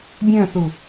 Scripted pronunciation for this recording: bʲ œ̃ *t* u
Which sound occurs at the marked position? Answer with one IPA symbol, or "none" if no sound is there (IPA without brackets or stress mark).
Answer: θ